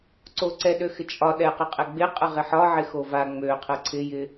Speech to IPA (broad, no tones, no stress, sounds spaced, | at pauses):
ǀ o ǀ ɛ ɗ ø x ɪ t͡ʃʼ ɒ ɗ ɛ q ə qʼ ɛ ɡ͡b ɪ qʼ ə ʁ ɪ ħ ɒ ʕ ɪ x o v a ŋ͡m ø qʰ ə ǀʰ ɪ j ɪ